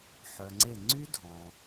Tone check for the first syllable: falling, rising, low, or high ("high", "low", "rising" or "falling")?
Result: low